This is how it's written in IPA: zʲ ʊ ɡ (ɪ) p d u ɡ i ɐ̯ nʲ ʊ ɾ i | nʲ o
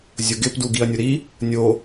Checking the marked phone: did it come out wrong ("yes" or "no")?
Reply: no